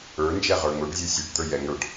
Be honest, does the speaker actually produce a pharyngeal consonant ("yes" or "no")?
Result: no